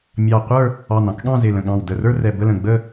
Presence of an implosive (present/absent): present